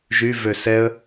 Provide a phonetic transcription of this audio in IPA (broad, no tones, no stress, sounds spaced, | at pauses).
ʒ y v ø s ɛ ə̯